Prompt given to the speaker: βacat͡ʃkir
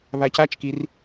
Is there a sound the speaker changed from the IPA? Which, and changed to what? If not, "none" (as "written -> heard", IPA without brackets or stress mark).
none